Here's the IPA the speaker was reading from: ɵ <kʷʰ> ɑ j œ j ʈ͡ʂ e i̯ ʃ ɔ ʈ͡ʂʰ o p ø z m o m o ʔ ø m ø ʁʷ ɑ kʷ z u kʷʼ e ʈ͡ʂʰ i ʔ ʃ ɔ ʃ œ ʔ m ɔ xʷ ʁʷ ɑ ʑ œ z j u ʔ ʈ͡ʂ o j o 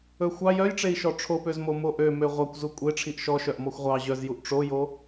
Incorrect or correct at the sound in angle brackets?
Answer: incorrect: xʷ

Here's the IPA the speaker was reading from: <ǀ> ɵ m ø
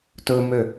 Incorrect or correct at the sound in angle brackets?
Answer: incorrect: t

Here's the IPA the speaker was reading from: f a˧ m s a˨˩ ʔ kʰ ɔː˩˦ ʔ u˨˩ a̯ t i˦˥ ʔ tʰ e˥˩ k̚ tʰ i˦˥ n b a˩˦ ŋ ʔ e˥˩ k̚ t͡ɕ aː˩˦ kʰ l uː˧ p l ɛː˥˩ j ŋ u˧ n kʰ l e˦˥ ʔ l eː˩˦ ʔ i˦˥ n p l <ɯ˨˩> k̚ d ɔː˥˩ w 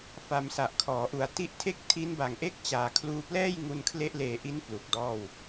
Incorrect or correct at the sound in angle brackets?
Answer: incorrect: u˨˩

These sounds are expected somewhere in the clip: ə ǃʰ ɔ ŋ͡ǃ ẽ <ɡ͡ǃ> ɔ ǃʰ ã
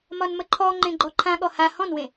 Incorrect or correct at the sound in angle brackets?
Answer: correct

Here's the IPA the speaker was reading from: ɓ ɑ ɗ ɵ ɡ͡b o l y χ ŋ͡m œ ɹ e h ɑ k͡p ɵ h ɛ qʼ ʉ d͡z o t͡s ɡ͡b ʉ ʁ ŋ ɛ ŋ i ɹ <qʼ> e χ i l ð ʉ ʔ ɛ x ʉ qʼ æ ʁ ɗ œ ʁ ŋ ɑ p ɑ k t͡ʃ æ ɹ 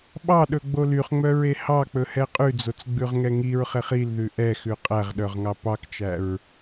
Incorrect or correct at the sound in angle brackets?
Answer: incorrect: χ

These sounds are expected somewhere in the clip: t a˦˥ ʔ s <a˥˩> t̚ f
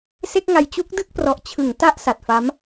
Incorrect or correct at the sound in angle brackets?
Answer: incorrect: a˨˩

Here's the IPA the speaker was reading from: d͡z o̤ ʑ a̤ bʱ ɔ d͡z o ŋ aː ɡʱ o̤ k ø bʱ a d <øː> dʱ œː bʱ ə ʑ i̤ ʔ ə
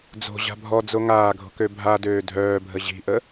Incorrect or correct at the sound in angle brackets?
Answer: correct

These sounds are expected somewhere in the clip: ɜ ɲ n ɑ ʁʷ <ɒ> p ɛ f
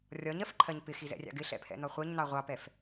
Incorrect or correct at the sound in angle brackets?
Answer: incorrect: ɑ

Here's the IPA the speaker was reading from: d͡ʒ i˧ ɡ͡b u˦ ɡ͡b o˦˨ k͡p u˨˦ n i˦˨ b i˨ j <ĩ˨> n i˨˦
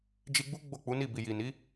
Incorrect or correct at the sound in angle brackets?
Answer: incorrect: i˨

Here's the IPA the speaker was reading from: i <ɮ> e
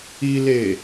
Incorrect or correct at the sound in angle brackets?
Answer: incorrect: l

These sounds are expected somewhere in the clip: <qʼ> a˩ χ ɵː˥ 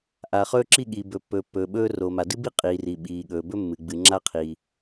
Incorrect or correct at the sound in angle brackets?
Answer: incorrect: ʔ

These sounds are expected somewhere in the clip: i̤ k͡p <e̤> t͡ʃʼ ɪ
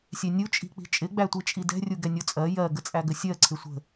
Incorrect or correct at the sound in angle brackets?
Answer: incorrect: i̤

